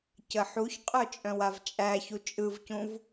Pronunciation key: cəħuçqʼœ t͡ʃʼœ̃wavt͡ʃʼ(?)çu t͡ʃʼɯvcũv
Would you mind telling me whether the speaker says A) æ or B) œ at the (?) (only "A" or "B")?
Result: A